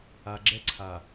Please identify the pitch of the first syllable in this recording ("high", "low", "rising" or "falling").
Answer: low